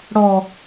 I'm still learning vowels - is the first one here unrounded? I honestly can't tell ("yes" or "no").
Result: no